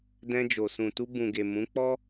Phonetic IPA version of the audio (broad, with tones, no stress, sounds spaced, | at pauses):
d ɛ̃˧ d͡ʒ o˨ s ũ˨ t u˧ b ũ˨ ɡ e˨ m ũ˨˦ k͡p ɔ˦